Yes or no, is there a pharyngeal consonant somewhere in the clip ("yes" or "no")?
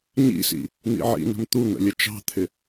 yes